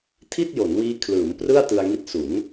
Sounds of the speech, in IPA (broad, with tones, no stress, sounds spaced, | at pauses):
tʰ i˥˩ t̚ j o˩˦ n w iː˦˥ kʰ l ɯː˩˦ m p r ɯ˥˩ a̯ t ɯ˧ a̯ ŋ i˦˥ t̚ s u˩˦ n